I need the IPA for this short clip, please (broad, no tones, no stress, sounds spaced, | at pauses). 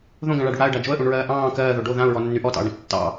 ð õ ɡ ã ɭ a ɖ u ɽ a ə̯ ɖ a d͡ʒ o ə̯ ʔ ũ ɳ ɹ ɜː ʔ ɑ̃ː k ɜː ð o ɖ o ð ã ʊ̯ ɹ ɔ nː y ʔ ɔ t ɑ̰ ʊ̯ ɽ ã t͡ʃ tː ɑ̰